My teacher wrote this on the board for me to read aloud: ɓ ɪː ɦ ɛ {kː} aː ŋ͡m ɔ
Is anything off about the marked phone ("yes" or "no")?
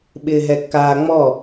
no